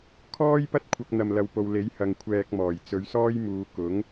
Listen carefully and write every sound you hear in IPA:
kʰ ɔː˥ j p ɐ˥ t̚ kʷʰ ɐ˧ k̚ n̪ ɐ˨ m l ɐ˨ w p o˨ w l e˨˥ j h ɐ˨ ŋ kʷʰ ɛː˨ k̚ m ɔː˨˩ j t͡s ɵ˨˧ ɥ s ɔː˥ j m uː˨˧ k ʊ˨˥ ŋ

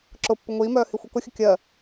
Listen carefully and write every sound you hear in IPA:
ǁ ʊ pː ʊ ŋʷ iː m œː h i xʷ ɐ k ʊ xʲ ə kʲ ɜ

